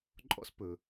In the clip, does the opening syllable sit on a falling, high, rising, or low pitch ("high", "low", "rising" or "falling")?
high